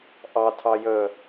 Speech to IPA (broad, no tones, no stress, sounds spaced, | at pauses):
ʔ ɑ tʰ ɑ j ə